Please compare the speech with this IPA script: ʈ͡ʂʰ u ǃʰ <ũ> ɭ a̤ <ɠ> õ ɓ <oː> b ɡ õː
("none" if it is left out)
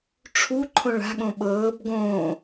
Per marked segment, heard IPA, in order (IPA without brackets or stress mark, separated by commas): õ, ɠ, ɤː